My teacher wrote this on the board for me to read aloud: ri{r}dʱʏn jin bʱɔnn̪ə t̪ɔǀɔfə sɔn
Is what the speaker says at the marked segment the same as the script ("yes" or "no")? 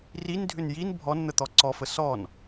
no